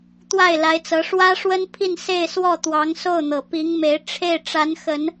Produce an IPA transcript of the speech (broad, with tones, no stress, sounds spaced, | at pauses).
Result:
t̪ w a˥˩ ɪ̯ l a˧˥ ɪ̯ t͡s ɤ˧˥ ʂ w ä˥ ʂ w ə˥ n pʰ i˥˧ n s e˥˧ ɪ̯ s w ɔ˥˩ t̪ w ɑ˧˥ ŋ s o˥˩ ʊ̯ n̪ ɤ˨˩ p i˧˥ ŋ m e˧˥ ɪ̯ ʈ͡ʂʰ e˥˩ ɪ̯ ʈ͡ʂ a˧˥ n x ə˨˩˦ n